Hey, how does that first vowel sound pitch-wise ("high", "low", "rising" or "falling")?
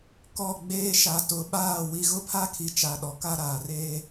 falling